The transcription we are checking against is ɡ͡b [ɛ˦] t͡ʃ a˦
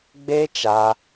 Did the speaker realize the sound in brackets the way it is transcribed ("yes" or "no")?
no